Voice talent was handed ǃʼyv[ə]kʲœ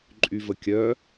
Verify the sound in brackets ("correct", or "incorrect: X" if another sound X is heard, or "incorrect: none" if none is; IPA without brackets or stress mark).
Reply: correct